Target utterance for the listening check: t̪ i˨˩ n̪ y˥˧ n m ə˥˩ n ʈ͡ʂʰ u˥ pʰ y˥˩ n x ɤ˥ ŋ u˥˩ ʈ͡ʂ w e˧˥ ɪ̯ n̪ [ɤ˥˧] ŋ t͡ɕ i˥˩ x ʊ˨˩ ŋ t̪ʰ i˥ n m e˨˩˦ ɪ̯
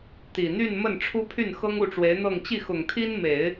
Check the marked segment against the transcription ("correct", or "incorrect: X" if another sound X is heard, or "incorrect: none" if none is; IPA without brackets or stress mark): correct